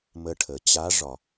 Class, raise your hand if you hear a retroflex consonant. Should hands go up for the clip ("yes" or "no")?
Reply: yes